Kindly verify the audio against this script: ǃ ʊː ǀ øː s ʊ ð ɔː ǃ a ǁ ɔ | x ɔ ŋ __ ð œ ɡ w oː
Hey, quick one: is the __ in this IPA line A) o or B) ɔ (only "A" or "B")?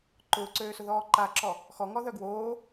B